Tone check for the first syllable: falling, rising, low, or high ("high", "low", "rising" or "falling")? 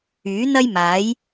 rising